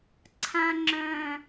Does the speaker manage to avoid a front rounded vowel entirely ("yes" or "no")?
no